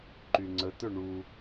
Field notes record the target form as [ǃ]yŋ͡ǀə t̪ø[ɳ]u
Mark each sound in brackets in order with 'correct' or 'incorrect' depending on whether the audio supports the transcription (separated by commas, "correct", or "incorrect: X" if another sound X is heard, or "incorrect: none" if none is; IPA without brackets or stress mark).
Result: correct, correct